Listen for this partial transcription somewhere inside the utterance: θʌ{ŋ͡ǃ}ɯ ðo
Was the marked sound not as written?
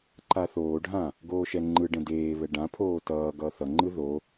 no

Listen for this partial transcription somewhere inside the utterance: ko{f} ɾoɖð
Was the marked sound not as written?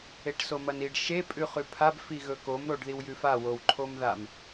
yes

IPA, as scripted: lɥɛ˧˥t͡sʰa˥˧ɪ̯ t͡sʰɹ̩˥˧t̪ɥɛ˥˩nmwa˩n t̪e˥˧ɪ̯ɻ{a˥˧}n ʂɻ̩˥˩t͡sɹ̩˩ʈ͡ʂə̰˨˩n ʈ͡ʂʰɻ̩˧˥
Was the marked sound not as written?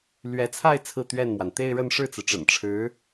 yes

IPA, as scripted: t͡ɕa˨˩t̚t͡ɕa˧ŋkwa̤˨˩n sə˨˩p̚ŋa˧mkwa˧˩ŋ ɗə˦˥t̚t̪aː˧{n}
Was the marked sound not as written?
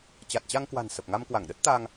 yes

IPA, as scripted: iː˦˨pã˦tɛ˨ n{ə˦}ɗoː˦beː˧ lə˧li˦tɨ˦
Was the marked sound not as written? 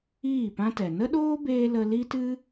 no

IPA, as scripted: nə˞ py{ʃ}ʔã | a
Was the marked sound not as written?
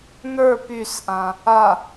yes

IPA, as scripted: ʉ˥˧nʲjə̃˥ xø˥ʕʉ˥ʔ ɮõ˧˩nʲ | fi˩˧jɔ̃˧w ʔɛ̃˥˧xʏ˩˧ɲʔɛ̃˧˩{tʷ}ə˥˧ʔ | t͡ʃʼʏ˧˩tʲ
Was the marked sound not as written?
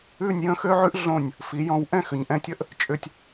yes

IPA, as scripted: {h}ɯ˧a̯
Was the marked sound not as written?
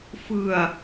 yes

